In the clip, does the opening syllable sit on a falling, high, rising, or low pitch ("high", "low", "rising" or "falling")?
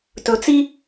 low